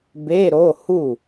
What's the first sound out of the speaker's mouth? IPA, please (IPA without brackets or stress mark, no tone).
b